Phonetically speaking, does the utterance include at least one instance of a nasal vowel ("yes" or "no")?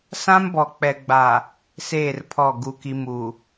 yes